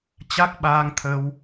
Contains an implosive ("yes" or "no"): yes